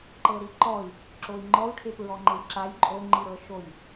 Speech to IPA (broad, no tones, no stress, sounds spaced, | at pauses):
ǃ ɤ ɾ i ǃ ɔ i̯ | ǁ o i̯ ŋ͡ǃ ɔ u̯ ʈʰ e p ɹ ɔ ŋ͡ǃ e j ǁ a j ǃʼ o ŋ͡ǃ i ɾ ɤ ʃ o j